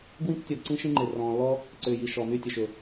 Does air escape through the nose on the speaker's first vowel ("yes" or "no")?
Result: yes